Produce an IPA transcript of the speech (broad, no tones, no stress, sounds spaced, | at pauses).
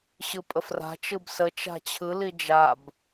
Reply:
ɕ ɯ pʼ ə f r a̤ t͡ʃ ɯ b s ə t͡ʃ a̤ t͡ɕʰ ɯ l i d͡ʒ a b